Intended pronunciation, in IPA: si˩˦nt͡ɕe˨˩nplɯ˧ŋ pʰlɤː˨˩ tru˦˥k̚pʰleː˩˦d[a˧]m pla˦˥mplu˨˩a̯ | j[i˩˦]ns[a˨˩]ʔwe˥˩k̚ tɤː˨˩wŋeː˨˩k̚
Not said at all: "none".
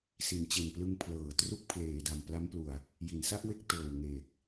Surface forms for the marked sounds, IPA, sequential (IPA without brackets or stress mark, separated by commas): a˨˩, i˩˦, a˥˩